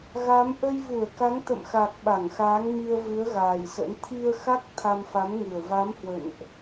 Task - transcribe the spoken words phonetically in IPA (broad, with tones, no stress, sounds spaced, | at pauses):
ɣ a˨˦ m ʔ ə˧ j v u˧˩ ə̯ k a˨˦ ŋ t̪ ə̰˧˨ m x a˨˩ k̚ ɓ a˧˩ ŋ x aː˨˦ ŋ m i˧ ə̯ v ɨ˨˦ ə̯ ɣ aː˨˩ j s ə̰˧˥ n t̪ʰ i˧ ə̯ x a˦˥ k̚ t̪ʰ a˧ m f a˨˦ m ŋ ɨ˨˩ ə̯ v a˨˦ m h w ə̰˧˨ n ʔ